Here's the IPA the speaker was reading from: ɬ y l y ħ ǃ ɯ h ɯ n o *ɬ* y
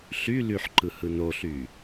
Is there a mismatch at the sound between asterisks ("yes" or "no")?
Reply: no